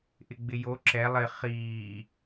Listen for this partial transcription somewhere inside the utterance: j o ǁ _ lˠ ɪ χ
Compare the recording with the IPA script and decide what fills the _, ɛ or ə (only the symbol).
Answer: ɛ